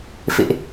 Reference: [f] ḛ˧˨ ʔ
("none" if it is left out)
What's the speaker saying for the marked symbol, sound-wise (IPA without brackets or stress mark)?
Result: f